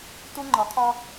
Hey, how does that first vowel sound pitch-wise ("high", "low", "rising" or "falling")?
high